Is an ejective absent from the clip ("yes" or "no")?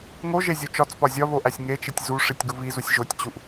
yes